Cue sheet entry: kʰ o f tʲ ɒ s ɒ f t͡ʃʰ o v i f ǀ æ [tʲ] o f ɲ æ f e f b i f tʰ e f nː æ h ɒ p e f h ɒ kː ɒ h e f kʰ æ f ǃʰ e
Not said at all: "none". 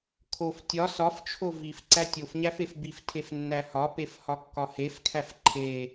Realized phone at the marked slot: tʲ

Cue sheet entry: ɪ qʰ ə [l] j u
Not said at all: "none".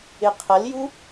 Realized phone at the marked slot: l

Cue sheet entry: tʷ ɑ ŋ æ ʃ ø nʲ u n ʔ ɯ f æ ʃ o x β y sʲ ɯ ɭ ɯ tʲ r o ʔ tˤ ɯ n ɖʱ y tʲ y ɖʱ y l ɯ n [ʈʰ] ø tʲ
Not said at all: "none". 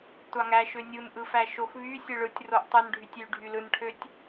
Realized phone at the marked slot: ʈʰ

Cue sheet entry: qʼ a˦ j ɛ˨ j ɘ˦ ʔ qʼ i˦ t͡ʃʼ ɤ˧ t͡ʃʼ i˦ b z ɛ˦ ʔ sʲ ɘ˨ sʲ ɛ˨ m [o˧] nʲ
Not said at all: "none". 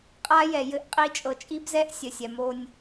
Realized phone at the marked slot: o˧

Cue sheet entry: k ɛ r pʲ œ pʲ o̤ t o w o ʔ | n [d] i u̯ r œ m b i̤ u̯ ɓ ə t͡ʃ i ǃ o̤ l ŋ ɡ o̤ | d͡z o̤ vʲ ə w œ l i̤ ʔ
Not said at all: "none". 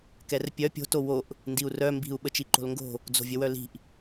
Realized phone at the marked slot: d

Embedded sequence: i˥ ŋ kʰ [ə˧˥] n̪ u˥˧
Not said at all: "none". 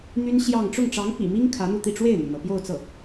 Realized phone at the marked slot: ä˧˥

